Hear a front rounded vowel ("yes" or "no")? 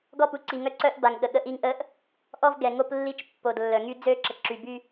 yes